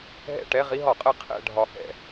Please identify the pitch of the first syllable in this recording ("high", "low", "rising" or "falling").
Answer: falling